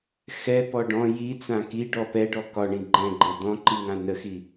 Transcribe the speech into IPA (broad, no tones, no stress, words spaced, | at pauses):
xɛpɔ ɖɔ̃ jit͡sã kiɖɔ pɛɖɔ kɒɳĩ ɡ͡ǃɛ̃ɡ͡ǃe d̪ɔ̃ǃiŋã nəxi